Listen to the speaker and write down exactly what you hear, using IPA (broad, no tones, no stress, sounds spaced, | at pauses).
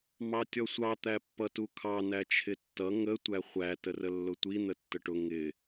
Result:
m ɑ tʲ ɔ sʷ ɑ t̪ æ pː ʌ t u kʰ ɑ n æ t͡ʃʰ ɪ tː ʌ ŋ ə tʷ æ χʷ æ t ə r ə lː ʊ tʷ i n̪ ə tː ə ʈ ʊ ŋ ɪ